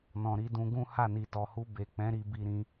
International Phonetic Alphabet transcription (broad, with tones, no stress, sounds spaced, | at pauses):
n ɔ̃˨ ɾ i˨˦ d ũ˧ ɡ ũ˦ h a˦˨ n i˨ t ɔ˨ h u˧ b e˨ k͡p ɛ̃˨˦ ɾ i˧ b i˧ ɾ ĩ˧